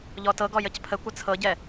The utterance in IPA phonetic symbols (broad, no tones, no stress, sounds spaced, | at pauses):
ʎ ɔ t ɤ ɡ ɔ j ə c pʰ ə kʷ ə t͡sʰ ɤ ɟ ɛ